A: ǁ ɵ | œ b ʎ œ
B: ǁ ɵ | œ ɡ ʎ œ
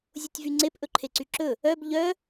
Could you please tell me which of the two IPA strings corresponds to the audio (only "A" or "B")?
A